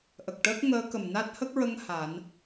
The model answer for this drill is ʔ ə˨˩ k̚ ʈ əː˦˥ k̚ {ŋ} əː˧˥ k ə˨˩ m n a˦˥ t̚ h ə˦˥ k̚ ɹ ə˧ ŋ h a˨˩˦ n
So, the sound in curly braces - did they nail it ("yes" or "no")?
yes